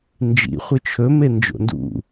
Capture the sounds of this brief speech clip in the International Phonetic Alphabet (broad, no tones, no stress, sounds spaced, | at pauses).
n d͡ʒ ḭ χʷ ɨ t͡ʃʰ ɵ m e n d͡ʒ o̰ n d ṵ